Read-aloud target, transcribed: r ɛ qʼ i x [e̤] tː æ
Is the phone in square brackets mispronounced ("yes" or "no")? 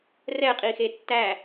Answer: yes